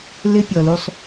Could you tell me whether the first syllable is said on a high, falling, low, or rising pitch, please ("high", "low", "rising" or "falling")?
high